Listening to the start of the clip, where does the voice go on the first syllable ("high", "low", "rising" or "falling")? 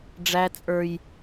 high